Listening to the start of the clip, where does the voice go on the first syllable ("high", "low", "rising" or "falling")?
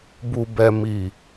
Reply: low